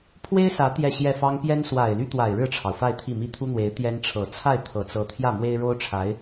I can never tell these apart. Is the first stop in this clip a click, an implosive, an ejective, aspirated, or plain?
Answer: aspirated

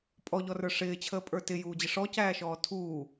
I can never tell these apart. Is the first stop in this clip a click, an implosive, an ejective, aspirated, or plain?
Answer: ejective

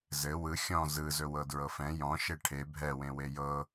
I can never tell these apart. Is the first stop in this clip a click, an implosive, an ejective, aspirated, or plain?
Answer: plain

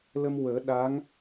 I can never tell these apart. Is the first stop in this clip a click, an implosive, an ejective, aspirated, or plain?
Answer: implosive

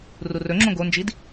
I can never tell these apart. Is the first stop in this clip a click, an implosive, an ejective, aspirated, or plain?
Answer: click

